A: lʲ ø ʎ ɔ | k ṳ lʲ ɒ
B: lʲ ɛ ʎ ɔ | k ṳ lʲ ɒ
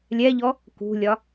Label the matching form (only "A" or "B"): B